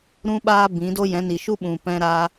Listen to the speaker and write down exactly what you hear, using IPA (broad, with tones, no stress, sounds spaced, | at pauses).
ɾ ũ˦ ɓ aː˦ b ĩ˨˦ d o˦ j ɛ̃˨˦ n i˨ ʃ u˦ ɓ ũ˨ p ɛ̃˧ ɾ a˧